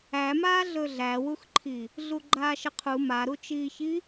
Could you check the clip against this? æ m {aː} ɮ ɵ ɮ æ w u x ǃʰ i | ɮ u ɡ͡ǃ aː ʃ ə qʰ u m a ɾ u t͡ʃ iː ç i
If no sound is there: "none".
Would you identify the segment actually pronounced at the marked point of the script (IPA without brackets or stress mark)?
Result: aː